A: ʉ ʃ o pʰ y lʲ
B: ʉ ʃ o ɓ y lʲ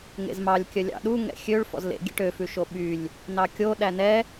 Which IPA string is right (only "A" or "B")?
B